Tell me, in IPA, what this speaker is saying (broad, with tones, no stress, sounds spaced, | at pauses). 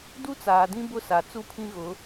d u˦ t͡s aː˨ d ĩ˦ b ʊ˦ s a˨ t͡s u˦˨ pʰ ĩ˦ ɣ ʊ˨˦